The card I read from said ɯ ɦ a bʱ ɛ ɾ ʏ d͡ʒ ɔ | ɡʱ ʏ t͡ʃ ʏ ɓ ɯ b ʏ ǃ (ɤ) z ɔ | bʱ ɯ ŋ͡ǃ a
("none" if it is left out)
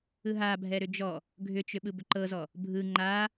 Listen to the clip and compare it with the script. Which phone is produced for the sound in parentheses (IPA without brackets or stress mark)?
ɤ